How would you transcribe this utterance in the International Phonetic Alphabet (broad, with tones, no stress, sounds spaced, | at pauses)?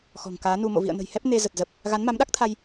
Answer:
x ɔ̤˨˩ ŋ k aː˨˦ n u˧ m o̰˧˨ v ḭ˧˨ ə̯ n ə̤˨˩ j h ɛ˦˥ p̚ n e˧ z ə˨˩ t̚ z ə˨˩ p̚ | ɣ a˨˦ n m a˨˦ m ɗ a˦˥ k̚ t̪ʰ a˧ j